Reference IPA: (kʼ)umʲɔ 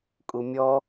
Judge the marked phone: correct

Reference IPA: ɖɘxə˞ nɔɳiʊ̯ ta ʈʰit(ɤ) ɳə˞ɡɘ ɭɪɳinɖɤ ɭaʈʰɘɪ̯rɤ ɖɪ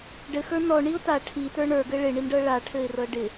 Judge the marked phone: incorrect: ə˞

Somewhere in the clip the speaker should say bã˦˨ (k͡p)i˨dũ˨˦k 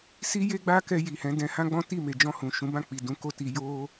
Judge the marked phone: correct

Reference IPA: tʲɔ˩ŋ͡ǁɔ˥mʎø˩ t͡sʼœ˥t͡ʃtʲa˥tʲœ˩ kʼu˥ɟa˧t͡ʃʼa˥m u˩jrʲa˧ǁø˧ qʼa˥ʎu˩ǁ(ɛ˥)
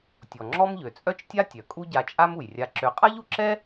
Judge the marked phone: correct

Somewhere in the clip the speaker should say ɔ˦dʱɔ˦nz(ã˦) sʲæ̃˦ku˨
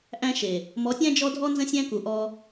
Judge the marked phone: incorrect: ə̃˦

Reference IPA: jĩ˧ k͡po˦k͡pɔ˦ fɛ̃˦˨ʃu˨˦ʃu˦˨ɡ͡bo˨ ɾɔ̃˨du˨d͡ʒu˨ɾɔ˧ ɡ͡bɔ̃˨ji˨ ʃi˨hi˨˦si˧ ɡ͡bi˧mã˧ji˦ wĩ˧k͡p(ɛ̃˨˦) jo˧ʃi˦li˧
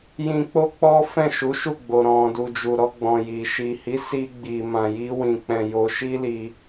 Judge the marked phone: incorrect: ɛ̃˧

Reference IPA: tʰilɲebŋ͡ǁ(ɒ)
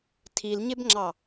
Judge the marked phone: incorrect: ɑ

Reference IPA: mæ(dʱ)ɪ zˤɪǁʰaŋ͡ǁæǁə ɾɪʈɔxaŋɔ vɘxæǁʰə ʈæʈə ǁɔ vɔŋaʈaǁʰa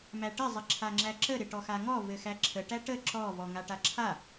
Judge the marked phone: incorrect: ʈ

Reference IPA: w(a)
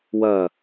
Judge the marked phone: incorrect: ɐ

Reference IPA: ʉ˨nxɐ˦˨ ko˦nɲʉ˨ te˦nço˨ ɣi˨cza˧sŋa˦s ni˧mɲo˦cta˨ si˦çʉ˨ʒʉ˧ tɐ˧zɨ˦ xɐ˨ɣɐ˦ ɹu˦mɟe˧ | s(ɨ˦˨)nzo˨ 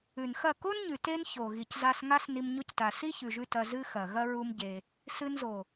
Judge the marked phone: incorrect: ɨ˧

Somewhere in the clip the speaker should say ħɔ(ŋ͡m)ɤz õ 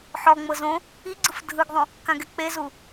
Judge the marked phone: correct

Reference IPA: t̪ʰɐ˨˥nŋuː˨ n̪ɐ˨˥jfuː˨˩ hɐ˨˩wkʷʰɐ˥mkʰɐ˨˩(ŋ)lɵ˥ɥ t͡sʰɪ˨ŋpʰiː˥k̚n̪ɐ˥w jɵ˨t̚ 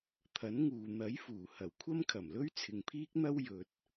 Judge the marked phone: incorrect: m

